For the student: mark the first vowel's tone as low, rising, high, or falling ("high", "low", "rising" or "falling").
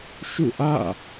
falling